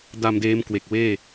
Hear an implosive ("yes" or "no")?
no